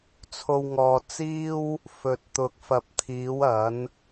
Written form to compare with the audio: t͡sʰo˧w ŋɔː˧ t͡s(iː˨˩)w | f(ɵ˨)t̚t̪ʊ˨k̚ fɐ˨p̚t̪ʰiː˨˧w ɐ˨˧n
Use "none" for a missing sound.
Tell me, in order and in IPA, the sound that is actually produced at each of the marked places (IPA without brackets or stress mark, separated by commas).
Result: iː˥, ɵ˨